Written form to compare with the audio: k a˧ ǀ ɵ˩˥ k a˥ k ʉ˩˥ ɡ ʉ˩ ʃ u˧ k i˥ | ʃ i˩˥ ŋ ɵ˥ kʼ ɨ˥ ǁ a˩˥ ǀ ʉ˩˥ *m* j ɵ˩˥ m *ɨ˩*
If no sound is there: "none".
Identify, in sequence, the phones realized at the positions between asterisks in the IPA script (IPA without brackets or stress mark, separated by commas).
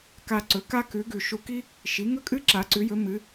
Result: none, ɨ˩˥